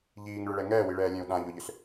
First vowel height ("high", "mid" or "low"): high